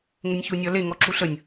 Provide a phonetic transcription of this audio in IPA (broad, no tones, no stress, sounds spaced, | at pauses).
ŋ ə nʲ ç u nʲ ɒ l e ŋ ɔ ǁ u ɬ ə nʲ